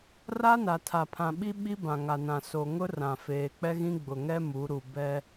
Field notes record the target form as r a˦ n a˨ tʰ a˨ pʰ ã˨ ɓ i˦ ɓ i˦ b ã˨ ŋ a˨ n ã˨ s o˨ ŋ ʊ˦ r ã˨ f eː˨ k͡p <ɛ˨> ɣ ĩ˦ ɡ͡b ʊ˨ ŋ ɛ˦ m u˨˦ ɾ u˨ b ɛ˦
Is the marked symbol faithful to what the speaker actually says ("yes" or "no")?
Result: no